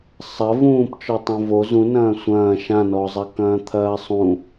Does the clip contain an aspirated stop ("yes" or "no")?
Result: yes